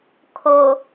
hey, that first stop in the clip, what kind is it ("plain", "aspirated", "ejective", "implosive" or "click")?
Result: aspirated